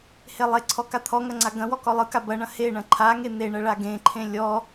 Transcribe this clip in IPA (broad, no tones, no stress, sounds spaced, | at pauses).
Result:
h e lˠ e ǀʰ ɔ k a t̪ʰ ɔ ŋ ɐ ŋ͡ǀ a ɡ ɐ̃ w ɔ k ɔ lˠ ɯ k a b ɐ ɳ ɐ̃ h e ɳ ɐ̃ ǃʰ a ŋ e n̪ e ɳ ɐ ɭ a ɡ ẽ ǃʰ ẽ lʲ ɔ